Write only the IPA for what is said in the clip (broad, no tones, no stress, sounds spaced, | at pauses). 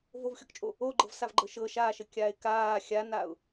v o v xʲ ɔ k t͡ʃʼ o | o ɡ͡ǃ ɤ v s a v ɡ͡ǃ ɤ ʃ ɤ ʃ aː ʃ ə kʲ aː ɪ̯ k aː xʲ a n a ʊ̯